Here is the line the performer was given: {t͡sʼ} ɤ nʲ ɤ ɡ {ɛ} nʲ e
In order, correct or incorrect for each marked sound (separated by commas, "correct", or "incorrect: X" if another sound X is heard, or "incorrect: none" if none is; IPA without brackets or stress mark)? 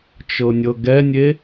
incorrect: t͡ʃ, correct